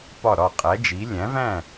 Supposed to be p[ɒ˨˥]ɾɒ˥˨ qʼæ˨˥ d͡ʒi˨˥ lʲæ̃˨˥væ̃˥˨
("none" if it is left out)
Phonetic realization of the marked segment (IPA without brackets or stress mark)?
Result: ɒ˥˨